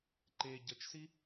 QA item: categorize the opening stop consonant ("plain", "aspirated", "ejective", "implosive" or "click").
click